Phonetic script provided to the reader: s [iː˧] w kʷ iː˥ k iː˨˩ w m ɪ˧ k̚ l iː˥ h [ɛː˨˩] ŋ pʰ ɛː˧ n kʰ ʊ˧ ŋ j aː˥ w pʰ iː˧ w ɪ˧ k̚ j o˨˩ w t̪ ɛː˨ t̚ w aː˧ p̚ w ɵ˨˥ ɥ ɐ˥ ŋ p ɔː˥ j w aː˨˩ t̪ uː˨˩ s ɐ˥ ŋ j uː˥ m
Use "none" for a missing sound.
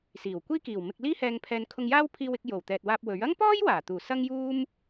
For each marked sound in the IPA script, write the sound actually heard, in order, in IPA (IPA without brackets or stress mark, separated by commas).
iː˨˩, ɛː˧